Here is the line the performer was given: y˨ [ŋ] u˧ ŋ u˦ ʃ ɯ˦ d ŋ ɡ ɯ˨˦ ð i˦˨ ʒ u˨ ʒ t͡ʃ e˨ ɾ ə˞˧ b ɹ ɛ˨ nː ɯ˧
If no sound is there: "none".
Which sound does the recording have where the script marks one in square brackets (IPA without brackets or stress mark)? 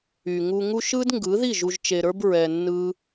ŋ